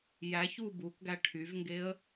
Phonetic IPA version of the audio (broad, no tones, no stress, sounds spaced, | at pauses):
j æ ç u b u k ɡ æ ʈʰ y v ŋ ɡ e ə̯